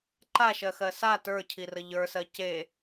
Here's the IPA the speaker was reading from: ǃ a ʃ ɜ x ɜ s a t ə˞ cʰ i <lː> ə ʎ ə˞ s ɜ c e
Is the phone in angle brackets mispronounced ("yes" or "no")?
yes